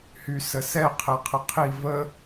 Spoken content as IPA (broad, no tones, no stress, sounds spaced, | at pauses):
h y s ə s ɛ qʰ ɛ qʰ ə qʰ i v ə